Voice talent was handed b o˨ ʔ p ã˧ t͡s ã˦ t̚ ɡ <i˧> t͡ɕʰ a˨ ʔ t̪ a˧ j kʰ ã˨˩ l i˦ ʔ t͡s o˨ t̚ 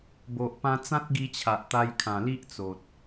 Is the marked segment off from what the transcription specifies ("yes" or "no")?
no